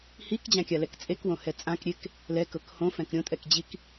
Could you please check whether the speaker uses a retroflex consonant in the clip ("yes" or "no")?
no